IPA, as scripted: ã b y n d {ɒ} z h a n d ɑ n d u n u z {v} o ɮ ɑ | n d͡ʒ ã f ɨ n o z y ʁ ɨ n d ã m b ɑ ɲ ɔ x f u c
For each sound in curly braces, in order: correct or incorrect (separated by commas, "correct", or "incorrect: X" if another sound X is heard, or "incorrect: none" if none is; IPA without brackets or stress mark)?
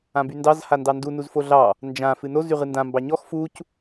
incorrect: ɑ, incorrect: f